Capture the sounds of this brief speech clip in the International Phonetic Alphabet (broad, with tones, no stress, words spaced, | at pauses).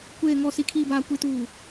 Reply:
kʷeː˨ŋɔ˨ si˨kʰiː˨baː˨ kʷi˨tuː˨